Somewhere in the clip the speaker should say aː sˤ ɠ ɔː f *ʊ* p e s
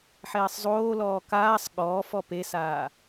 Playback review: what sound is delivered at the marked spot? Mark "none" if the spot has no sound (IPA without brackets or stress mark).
ɔ